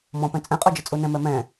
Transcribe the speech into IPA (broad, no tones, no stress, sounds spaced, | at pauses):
m ɔ̃ p ɛ̃ t͡sʼ ɛ̃ qʼ o d͡ʒ ɘ t͡sʼ u n ɛ̃ m ɛ m ɛ̃